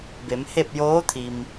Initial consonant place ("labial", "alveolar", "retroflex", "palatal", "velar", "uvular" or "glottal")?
labial